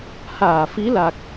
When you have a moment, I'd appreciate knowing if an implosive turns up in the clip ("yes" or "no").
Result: no